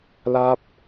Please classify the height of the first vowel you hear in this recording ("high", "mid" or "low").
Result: low